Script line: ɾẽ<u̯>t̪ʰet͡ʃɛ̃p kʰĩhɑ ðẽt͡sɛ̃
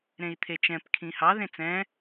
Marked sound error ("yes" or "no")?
yes